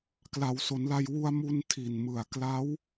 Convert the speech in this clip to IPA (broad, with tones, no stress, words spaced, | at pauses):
kla˩˦wso˩˦nla˧j wu˧a̯mu˧n tʰi˨˩nmɯ˨˩a̯ kla˦˥w